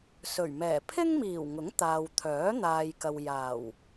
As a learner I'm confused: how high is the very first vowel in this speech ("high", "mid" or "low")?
mid